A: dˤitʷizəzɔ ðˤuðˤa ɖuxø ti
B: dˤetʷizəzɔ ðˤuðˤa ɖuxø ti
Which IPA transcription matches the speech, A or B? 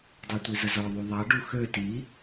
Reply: A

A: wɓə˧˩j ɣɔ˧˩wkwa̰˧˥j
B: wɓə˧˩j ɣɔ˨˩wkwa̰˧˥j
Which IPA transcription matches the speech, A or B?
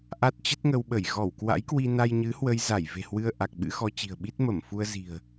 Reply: A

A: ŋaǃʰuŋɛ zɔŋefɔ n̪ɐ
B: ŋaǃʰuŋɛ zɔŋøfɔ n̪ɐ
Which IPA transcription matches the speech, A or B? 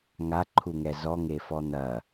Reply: A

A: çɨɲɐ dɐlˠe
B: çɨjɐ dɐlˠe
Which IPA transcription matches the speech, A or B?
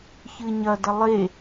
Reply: A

